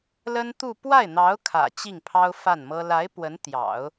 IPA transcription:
lə˥nt̪u˥˧ pwa˥˩ɪ̯n̪ɑ˧˥ʊ̯ kʰä̰˨˩ t͡ɕi˥˩ŋpʰɑ˥ʊ̯fa˥˩nmɤ˥ la˧˥ɪ̯ pwə˧˥nt̪jɑ̰˨˩˦ʊ̯

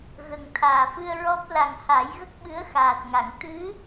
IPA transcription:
ɣə˨˩ŋt̪ʰaː˨˩fɨ˧ə̯ɹɔ˦˥p̚ la˨˩ŋha˨˩˦jɣə˦˥k̚ɓɨ˧˥ə̯ xaː˨˩t̚ŋa˨˩˨ŋ t̪ɨ˧˥

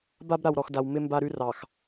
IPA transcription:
ba˦b ɾa˨wɾɔ˨xda˨w mɪ˦ mba˦ɾʉ˦ rɑ˨x

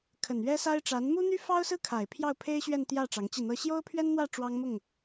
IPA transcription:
kʰə˨˩nɥɛ˥sa˥ɪ̯ ʈ͡ʂa˧˥n mu˥n̪y˥ fɑ˥ʊ̯sɹ̩˥ kʰa˨˩ɪ̯ pʰjɑ˥˩ʊ̯pʰe˥ɪ̯ɕɥɛ˥˧nt̪jä˥˩ ʈ͡ʂɑ˧˥ŋt͡ɕi˥˩n̪ɤ˥ ɕjo˥ʊ̯pʰɥɛ˥nn̪wä˥˩ ʈ͡ʂwɑ˥ŋmʊ˥˩ŋ

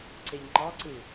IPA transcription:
ǀeʎŋ͡ǃɑǀɯ

